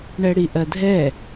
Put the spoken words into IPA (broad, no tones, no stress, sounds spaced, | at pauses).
ɳ ɛ ɽ i ʔ ɜ dʱ ɛ